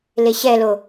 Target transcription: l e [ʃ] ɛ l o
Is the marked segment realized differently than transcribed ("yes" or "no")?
yes